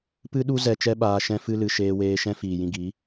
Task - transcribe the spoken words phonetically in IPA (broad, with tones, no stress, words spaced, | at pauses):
pɨ˦ɗu˦ zɛ˧t͡ʃɛ˦ ɓaː˧ʃɛ̃˦ fɨ˦lɨ˧ ʃeː˧weː˧ ʃɛ̃˦fiː˨jĩ˧ɡi˨˦